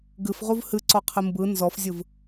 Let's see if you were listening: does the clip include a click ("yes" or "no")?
yes